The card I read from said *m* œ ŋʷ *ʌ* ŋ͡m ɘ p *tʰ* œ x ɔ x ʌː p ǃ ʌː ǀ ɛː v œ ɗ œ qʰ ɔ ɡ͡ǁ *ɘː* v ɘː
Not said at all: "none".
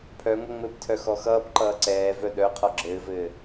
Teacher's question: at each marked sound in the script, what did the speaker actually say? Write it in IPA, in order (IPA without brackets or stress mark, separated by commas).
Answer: pʰ, ʌ, tʰ, ɘː